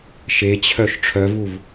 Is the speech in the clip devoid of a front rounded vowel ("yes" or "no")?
no